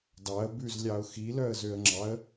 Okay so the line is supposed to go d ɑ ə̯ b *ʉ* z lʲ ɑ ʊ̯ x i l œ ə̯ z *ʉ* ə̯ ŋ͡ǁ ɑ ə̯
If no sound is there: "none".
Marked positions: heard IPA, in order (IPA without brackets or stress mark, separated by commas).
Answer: ʉ, ø